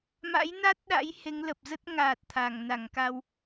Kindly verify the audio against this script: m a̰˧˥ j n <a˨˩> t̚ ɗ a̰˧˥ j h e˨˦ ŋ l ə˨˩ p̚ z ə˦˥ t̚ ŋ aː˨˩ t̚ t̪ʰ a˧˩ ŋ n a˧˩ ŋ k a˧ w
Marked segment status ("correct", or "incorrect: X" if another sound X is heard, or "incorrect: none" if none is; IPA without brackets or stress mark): incorrect: a˦˥